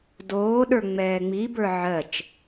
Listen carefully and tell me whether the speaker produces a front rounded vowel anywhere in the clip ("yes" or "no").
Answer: no